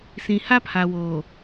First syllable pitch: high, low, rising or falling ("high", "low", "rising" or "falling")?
low